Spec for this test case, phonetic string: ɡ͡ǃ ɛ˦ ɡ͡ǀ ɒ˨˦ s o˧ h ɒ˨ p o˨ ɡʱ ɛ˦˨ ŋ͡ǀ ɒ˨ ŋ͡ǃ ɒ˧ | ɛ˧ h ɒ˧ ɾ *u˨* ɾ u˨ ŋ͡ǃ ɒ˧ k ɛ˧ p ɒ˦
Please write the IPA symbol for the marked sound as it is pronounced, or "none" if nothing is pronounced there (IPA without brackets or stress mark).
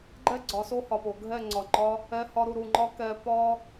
u˨